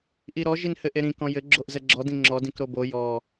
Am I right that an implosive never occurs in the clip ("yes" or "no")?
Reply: yes